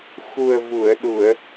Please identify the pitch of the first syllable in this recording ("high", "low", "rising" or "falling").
low